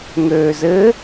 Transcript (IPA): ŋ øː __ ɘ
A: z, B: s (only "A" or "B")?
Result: A